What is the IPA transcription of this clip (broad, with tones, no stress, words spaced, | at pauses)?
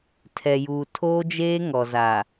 tʰɛ˨juː˨ tʰoː˦d͡ʒeː˦ŋɔ˨za˨